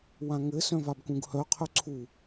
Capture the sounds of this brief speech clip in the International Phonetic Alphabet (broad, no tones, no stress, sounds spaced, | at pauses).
w ã ŋ ɘ s œ̃ v a b k ũ ɡ h œ qʰ œ ǀʰ u